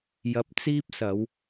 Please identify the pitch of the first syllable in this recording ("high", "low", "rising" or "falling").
rising